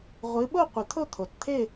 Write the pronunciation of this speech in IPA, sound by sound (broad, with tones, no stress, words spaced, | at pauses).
ʁʷɨ˨˦ɓo˥˧ qʷɨ˨˩t̪ʰo˥˧t̪ʰo˨˩tt̪ʰe˥˧